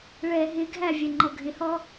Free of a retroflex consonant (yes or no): no